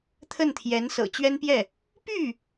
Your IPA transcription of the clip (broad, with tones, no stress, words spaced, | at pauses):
t̪ʰə˥˩nt̪ʰjɛ˧˥n sɤ̰˨˩t͡ɕɥɛ˥npjɛ˥˩ | py˥˩